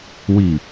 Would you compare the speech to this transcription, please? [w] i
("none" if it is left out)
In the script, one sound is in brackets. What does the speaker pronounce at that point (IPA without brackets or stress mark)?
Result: w